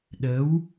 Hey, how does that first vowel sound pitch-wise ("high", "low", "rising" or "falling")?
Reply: rising